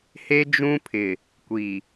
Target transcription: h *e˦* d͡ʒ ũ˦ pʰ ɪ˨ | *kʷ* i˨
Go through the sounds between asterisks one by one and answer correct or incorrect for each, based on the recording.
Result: correct, correct

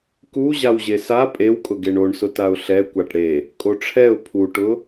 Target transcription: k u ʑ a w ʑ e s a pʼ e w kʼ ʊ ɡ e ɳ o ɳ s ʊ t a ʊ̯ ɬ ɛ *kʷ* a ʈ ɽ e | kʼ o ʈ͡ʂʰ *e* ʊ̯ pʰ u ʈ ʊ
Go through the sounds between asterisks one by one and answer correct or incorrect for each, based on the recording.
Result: correct, incorrect

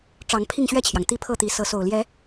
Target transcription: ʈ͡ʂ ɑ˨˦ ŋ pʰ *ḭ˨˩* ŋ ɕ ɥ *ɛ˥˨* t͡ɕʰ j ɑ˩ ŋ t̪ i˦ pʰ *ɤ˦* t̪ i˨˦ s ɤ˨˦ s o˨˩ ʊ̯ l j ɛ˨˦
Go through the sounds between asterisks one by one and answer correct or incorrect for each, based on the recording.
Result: incorrect, correct, incorrect

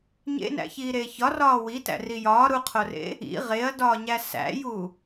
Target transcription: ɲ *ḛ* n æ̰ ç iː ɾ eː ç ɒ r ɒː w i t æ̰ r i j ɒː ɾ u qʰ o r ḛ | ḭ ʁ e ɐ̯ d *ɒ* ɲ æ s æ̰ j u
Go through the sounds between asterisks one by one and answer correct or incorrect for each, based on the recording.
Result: correct, incorrect

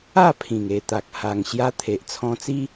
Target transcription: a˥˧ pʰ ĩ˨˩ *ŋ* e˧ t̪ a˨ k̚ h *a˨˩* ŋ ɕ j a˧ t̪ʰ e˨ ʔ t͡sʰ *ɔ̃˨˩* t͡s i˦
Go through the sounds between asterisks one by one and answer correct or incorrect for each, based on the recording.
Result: correct, correct, incorrect

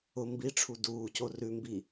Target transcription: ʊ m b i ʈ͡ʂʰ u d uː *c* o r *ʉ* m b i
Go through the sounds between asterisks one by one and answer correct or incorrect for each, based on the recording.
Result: correct, correct

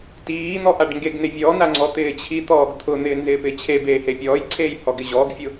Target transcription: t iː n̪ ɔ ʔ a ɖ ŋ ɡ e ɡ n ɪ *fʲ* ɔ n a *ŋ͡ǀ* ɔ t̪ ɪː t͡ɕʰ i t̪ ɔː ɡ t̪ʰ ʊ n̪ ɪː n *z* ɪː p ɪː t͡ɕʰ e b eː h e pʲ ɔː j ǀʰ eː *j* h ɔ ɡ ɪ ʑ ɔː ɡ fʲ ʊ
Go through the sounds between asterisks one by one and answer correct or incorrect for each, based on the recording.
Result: incorrect, correct, correct, correct

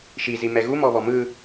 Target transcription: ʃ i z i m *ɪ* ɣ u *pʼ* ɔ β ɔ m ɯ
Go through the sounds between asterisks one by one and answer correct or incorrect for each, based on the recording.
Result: incorrect, incorrect

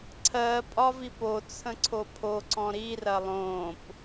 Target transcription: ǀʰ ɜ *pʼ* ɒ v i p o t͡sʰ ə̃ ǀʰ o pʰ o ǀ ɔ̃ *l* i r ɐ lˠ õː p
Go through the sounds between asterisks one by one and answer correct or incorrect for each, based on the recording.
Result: correct, incorrect

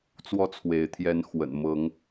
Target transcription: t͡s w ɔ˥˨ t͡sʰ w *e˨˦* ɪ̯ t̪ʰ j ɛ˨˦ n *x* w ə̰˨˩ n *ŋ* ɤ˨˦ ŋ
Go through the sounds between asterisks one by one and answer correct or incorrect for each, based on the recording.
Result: correct, correct, incorrect

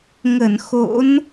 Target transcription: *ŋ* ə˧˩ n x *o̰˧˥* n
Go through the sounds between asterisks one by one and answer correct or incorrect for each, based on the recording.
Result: correct, correct

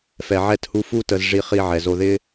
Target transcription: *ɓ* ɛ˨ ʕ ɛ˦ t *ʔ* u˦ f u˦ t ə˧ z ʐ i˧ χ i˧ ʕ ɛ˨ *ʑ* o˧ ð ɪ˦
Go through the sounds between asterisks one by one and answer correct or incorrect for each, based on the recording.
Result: incorrect, incorrect, incorrect

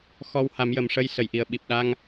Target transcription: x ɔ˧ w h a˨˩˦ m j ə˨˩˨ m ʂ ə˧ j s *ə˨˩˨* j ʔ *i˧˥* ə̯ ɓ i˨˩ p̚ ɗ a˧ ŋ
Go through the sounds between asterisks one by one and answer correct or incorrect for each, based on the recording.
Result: correct, incorrect

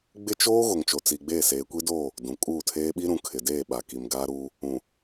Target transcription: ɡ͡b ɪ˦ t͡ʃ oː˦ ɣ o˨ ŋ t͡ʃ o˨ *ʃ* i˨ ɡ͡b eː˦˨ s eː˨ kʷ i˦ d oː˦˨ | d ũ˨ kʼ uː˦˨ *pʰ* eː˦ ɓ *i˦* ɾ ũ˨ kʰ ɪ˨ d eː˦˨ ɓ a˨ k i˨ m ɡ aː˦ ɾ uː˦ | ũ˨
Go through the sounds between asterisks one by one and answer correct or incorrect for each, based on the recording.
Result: incorrect, incorrect, correct

